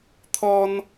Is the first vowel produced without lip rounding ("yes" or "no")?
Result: no